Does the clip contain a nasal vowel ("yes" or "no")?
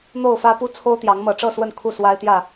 no